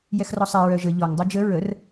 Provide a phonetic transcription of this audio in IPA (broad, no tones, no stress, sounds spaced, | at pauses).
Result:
j ɛ x r ɔ sˤ ɛ ɹ œ ʒ ə ʎ ɔ ŋ dˤ u d͡ʒ ə ɹ ə r